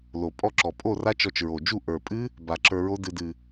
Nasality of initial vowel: oral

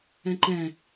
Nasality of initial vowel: nasal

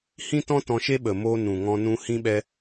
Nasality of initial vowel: nasal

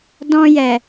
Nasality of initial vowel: nasal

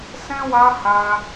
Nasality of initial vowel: nasal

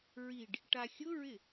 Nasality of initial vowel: oral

